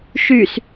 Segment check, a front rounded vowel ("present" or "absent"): present